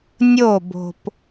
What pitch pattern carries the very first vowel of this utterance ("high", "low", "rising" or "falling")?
falling